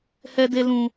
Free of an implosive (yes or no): yes